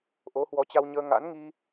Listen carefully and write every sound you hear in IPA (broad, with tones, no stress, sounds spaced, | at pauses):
ʔ o˨˦ h w ɔ˨˦ t͡ɕ a˧ w ɲ əː˧ ŋ a̰˧˥ n ŋ i˧